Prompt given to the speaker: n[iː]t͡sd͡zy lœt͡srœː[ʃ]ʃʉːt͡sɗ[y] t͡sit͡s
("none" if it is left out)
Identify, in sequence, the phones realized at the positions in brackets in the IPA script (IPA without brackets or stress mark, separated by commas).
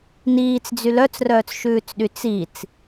iː, t͡s, y